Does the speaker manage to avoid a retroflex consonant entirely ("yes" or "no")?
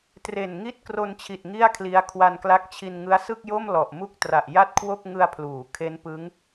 yes